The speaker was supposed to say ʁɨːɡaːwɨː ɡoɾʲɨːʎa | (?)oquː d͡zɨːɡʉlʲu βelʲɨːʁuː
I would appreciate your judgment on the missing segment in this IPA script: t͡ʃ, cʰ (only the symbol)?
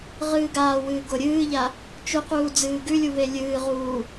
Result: t͡ʃ